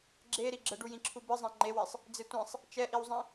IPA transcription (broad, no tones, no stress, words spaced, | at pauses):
ɡ͡ǁeɾi ɡ͡ǁəɖujĩǁʰu bɨzˤẽ ŋ͡ǃewisˤ | d͡zetʷẽsˤ | t͡ʃɛʔiwzˤĩ